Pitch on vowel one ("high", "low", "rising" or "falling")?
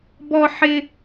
high